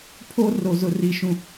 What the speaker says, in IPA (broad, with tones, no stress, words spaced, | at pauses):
pʰo˦ ro˨zʊ˨ri˨ ʃũ˨